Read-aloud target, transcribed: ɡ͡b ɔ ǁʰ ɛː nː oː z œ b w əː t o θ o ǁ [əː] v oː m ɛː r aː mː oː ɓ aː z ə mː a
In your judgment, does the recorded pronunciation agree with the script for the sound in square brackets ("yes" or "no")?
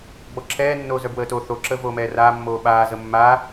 yes